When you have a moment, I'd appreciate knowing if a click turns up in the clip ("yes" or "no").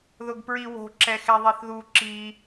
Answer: yes